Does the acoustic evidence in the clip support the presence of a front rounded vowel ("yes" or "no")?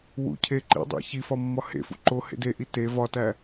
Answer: no